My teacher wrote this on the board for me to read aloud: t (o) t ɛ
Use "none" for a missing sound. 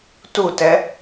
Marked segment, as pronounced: u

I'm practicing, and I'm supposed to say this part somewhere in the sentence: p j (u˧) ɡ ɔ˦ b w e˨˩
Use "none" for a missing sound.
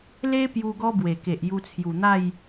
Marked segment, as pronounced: u˦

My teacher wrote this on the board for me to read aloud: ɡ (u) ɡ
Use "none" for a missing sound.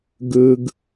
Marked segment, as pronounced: ɯ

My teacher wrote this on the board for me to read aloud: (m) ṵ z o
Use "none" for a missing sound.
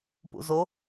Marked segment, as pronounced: p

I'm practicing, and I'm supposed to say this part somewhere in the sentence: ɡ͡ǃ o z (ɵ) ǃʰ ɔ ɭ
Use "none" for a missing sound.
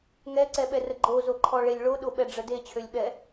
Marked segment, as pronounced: o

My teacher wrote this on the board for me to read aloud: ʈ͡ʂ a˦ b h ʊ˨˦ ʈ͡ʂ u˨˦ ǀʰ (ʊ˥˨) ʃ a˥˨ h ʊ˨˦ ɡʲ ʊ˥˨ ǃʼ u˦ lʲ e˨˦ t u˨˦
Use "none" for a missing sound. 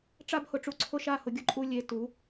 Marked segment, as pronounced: ʊ˥˨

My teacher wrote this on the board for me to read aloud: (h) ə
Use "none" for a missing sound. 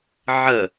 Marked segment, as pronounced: ʕ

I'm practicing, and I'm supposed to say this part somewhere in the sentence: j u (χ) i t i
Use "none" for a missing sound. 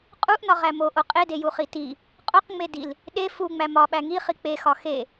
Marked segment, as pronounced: χ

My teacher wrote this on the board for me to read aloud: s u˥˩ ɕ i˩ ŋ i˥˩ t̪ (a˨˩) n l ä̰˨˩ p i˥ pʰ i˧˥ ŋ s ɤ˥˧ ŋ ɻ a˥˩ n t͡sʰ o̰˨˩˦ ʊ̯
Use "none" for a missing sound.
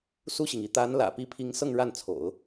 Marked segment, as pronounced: a˧˥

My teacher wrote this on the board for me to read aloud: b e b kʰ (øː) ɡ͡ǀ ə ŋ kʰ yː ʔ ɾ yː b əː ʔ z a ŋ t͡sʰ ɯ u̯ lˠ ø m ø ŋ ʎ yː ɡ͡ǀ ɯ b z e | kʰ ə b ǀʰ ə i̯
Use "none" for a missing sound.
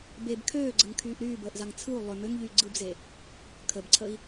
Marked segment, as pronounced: øː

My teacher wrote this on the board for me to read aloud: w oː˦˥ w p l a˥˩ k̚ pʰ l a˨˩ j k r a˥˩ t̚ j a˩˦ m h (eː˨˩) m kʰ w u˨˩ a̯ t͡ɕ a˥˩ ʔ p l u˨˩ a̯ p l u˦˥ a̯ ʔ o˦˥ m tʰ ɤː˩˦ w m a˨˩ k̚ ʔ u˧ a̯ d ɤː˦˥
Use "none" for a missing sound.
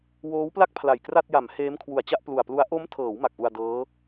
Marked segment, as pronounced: eː˦˥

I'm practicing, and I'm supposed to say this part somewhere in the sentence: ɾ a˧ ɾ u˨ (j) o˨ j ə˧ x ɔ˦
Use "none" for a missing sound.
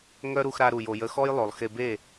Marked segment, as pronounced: j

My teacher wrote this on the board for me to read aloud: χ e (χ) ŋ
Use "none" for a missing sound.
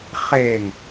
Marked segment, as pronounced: none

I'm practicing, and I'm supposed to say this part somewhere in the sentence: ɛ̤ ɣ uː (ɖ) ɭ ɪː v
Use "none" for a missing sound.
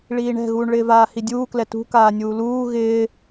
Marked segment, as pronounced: ɳ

